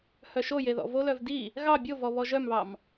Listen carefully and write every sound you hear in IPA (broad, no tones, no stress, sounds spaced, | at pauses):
h œ ʃ o j e ð ɔ̰ v o l œ v d i | ɣ ɑ bʲ o v ɔ β ɔ ʒ œ m β ɑ m